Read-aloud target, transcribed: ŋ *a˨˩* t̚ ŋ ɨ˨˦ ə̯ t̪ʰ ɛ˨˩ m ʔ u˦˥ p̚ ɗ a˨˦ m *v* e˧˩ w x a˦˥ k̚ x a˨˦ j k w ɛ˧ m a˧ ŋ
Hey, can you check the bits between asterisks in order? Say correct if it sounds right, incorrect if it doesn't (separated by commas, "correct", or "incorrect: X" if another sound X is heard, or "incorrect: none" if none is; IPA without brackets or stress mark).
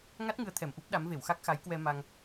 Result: incorrect: a˦˥, correct